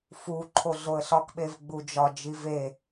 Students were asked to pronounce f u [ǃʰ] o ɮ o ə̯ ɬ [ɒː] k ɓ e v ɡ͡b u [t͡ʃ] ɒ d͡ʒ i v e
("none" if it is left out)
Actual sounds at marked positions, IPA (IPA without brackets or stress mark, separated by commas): ǃʰ, ɒ, d͡ʒ